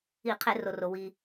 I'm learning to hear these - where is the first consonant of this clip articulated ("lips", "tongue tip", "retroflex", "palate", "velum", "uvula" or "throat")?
uvula